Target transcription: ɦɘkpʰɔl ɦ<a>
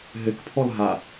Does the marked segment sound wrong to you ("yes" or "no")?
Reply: no